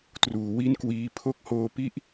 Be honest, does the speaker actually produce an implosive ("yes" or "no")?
no